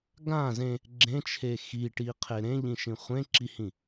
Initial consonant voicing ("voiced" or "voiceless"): voiced